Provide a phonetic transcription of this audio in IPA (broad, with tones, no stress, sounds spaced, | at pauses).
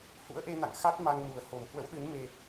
h ṵ˧˥ ə̯ ʔ e˧ n a̰˧˨ ŋ x a˦˥ t̚ m a˧ ŋ n u˨˩ ə̯ h o˨˩ m h w ə̰˧˥ w ɗ ɨ˨˦ n m e˧